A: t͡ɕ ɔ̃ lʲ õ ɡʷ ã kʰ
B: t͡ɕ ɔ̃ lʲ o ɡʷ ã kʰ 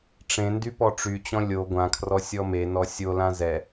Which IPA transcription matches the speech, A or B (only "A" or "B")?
B